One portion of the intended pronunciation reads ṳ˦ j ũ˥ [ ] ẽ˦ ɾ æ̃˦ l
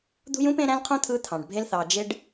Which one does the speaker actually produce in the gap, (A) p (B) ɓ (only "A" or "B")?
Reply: A